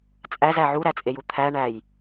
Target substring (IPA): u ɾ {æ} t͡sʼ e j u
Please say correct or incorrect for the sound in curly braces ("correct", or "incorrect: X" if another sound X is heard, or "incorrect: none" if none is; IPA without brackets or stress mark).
correct